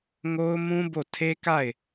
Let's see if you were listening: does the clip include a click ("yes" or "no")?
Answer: no